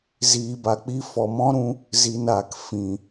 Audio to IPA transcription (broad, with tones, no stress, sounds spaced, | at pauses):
z iː˨ b a˨ k͡p i˧ f ɔ˨ m ɔ̃˦ ɾ ũ˧ | z i˨ n aː˨ k f ĩ˨